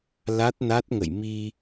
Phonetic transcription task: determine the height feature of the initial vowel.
low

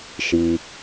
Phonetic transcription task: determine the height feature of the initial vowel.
high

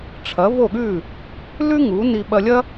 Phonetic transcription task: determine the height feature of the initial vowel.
low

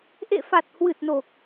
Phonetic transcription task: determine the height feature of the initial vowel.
mid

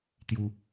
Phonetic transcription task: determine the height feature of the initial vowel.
high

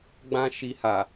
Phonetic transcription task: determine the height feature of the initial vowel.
low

